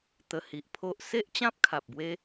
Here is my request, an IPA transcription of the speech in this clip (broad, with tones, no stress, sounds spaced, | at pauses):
t̪ ə˧ h i˨ ʔ pʰ o˦ ʔ s e˦ ʔ t͡ɕ ã˦ p̚ kʰ a˨ p̚ b w e˦